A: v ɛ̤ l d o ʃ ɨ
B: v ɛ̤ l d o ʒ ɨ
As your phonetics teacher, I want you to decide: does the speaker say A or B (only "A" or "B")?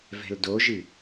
B